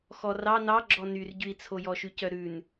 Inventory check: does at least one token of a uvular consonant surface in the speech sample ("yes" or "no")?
no